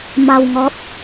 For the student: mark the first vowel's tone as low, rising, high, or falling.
low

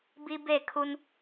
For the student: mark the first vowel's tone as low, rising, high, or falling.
high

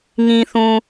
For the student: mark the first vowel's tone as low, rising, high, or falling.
low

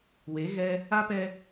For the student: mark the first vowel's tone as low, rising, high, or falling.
rising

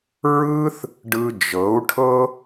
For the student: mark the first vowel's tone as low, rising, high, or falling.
high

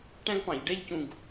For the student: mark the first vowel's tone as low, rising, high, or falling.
high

